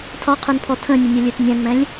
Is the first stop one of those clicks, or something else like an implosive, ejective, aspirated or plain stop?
aspirated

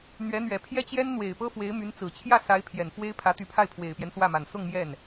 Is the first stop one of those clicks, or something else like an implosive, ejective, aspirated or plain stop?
aspirated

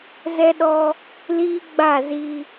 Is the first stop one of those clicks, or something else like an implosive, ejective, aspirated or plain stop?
implosive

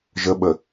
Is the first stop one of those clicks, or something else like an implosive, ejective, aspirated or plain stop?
implosive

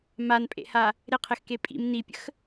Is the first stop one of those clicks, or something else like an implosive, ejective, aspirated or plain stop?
ejective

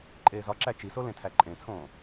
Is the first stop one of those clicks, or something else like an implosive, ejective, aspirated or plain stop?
click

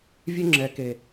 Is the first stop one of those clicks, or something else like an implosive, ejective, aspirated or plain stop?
click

